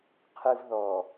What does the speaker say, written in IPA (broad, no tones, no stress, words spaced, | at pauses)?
qʰɨv ðɔ